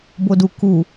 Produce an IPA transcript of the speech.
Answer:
b o d u k u

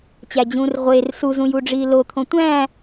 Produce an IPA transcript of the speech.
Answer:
t͡ɕ æ d͡ʑ ũː r ʁʷ e r s u z ũ j u ɖ͡ʐ iː l o t̪ʰ õ tʷ æ̃ː

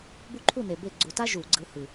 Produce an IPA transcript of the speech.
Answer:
b u˦˥ ǃʰ u˥˨ n e˨˩ b e˥˨ ɡ͡ǀ u˧˩˧ t a˦˥ ʒ u˧˩˧ ɡ͡ǀ ɯ˨˦ h ɯ˨˩

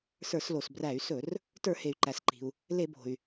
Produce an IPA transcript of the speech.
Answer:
s ə˞˧˩˧ s l o˩ s b r æ˧˩˧ y̯ s ɵ˧˩˧ r | t ə˞˧˩˧ h e˩ y̯ ǃ æ˩ s ǃ i̤˩ u̯ | l e˧˩˧ b o̤˩ y̯

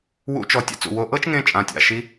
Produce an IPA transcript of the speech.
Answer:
w ṵ˧˥ t͡ʃ ɔ˩˧ tʲ a̰˧ t͡s ṵ˩ w o˧ ʔ ɤ˥ t͡ʃ ŋ ẽ˧ t͡ʃʼ ã˩˧ tʲ a̰˩ ʃ i˧˥

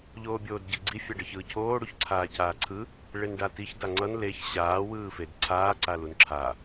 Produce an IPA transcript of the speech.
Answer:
ʎ oː bʲ oː d ɟ e ɡ͡ǀ i fʲ a ɖ ʌ ç ɯː cʰ oː ɽ u ç ǀʰ aː c aː ǀʰ ɯ | ɭ e n ɖ a t i ç d a ŋ͡ǀ ʌ n l e ç ɕ aː w ɯː f e d ǀʰ aː ǀ a l u n ǁʰ a

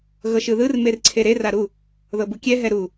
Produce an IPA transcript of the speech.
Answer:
ɣ ɤ ʃ ɯ ð ɯ r m e r ǀʰ e ɾ e r a ɾ u | ð ɤ b u kʲ ɛ ɦ ɛ ɾ u

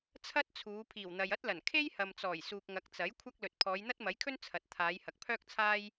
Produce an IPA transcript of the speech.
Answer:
t͡sʰ ɐ˥ t̚ t͡sʰ uː˨˧ pʰ iː˨˩ w n̪ ɐ˨ j ɐ˥ t̚ l ɐ˨˩ n kʰ e˥ j h ɐ˨ m t͡s ɔː˨˩ j s uː˨ k̚ ŋ ɐ˨˥ k̚ t͡s ɐ˨˥ j kʷʰ ɐ˥ k̚ l ɵ˨ t̚ pʰ ɔː˨˧ j n̪ ɐ˥ t̚ m ɐ˨˥ j kʰ ɵ˥ n t͡sʰ ɐ˨ t̚ t̪ʰ aː˨˧ j h ɐ˨ k̚ pʰ œː˥ k̚ t͡sʰ aː˥ j

